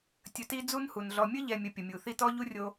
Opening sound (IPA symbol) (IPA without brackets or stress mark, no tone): tʲ